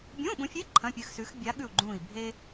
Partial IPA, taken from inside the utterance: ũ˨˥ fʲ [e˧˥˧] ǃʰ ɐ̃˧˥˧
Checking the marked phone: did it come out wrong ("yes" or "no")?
no